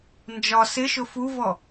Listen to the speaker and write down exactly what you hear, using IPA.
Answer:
nd͡ʒɒ sɪʃʊ fuvɔ

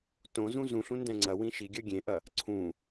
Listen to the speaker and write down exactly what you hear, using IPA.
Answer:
tõzũ zũɬũ ndɛ̃ŋ͡ǀɐwĩ ʃiɡʲɐ ɡʲẽʔɐ | ǀʰũ

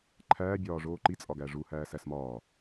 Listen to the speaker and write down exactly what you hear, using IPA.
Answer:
ǃʰæːbʲɒː ʐoːǃit͡sʼɒ ɡæʐuhæː sæsmɒː

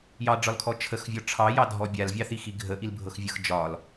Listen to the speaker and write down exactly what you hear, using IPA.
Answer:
jɑɖ͡ʐɒlkʰɔ t͡ʃʰəxvʲɔ ʈ͡ʂʰɑjɑdʱɔ bʲalvʲɑθixi ɡʱəʔilbʱɤxvʲɤx d͡ʒɒl

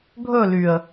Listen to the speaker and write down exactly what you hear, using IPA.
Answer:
ɡʱɵ lyə̯

